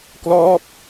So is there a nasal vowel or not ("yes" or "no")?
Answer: no